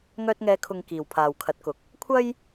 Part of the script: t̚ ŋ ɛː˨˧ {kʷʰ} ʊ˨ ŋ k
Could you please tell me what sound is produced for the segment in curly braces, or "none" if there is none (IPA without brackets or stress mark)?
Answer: kʰ